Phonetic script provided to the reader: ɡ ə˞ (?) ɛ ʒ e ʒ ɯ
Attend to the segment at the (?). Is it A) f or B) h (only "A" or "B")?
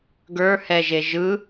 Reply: B